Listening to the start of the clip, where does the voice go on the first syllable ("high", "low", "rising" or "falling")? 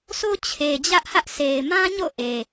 high